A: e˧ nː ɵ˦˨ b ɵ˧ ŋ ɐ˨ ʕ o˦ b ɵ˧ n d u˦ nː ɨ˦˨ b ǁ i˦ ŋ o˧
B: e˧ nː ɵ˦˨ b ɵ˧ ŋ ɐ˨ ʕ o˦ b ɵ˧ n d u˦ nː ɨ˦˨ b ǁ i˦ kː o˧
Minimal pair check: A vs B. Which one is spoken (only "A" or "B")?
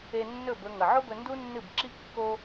B